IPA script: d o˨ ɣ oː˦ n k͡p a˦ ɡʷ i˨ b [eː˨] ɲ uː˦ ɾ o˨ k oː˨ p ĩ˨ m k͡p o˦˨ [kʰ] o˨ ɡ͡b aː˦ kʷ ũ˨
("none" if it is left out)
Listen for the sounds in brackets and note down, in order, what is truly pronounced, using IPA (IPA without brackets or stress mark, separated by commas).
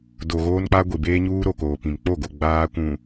eː˦, ɡ